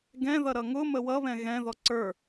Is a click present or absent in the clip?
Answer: present